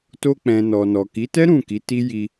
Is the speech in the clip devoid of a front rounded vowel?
yes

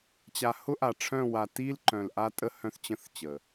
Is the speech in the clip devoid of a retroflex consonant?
no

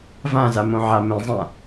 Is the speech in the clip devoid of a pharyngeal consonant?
no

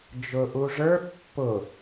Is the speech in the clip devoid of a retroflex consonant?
no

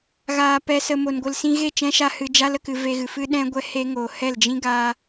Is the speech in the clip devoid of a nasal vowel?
no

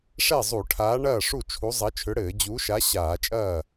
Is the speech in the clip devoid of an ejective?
no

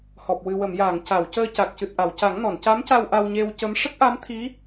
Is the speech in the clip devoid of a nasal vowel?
yes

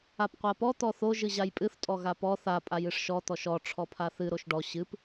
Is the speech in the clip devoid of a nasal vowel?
yes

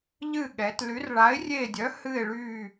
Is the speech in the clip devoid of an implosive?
no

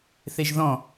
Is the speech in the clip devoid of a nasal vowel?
no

